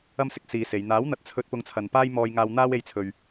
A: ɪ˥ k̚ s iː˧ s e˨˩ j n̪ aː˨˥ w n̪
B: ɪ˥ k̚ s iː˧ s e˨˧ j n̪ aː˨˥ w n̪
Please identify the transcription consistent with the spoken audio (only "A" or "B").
B